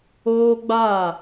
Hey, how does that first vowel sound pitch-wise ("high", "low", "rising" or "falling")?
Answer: high